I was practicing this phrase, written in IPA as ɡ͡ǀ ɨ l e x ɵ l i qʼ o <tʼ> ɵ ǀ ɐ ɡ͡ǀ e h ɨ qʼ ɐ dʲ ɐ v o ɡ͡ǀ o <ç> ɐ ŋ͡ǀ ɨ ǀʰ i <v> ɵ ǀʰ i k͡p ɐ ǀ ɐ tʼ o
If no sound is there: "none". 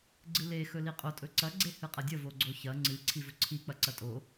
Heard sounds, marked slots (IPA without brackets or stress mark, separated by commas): tʼ, ç, v